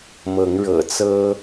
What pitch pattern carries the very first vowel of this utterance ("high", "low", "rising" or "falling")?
rising